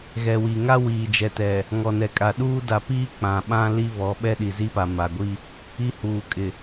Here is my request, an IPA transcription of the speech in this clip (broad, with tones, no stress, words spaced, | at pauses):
ɣɛ˨wi˨ŋa˦ wiː˨d͡ʒɛ˨tɛ˨ | ŋɔ˨nɛ˨kʼa˨ɗuː˦ da˨piː˦ k͡pã˨ɓã˦ li˦βɔ˨˦ ɓɛ˦ɗi˨zi˦pa˨ ma˨ɡʷi˦ | i˦huː˨kʼɪ˨